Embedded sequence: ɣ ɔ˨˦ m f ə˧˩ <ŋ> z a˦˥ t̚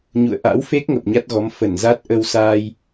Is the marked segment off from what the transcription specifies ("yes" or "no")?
yes